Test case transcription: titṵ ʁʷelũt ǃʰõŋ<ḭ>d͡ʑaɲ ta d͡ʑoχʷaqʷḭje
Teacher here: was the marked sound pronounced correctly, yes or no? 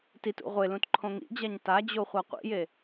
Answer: yes